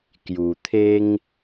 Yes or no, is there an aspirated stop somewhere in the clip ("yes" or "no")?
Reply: yes